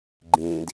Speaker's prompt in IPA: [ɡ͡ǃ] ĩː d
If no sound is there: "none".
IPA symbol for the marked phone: ɡ͡ǃ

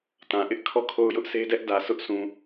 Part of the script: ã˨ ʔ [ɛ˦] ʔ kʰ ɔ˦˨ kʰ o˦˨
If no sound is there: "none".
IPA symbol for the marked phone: ɪ˦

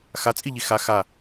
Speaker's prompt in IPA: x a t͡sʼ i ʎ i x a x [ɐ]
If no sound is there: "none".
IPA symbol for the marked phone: a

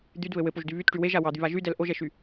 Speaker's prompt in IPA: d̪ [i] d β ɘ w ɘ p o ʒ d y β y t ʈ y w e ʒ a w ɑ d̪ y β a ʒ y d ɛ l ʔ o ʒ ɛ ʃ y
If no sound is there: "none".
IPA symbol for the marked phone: y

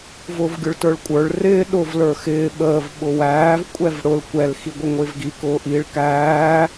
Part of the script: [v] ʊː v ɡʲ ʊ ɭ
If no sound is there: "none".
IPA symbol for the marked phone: v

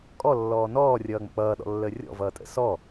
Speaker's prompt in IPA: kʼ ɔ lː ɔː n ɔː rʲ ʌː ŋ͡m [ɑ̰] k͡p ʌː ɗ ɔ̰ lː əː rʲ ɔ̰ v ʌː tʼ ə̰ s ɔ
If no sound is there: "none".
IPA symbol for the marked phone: ə̰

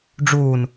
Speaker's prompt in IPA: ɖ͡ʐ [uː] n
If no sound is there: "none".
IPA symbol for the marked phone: uː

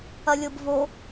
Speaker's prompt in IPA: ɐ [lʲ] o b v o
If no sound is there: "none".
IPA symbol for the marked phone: lʲ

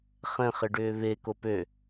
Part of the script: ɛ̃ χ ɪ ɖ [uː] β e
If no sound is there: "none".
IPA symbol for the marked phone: ʏː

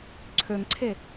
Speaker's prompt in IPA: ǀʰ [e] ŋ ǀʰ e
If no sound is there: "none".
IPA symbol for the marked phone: ø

